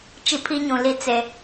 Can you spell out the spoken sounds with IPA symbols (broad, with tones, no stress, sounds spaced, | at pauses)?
t͡ʃ i˦ pʰ i˦ ɲ ũ˨ l i˦ t͡s e˨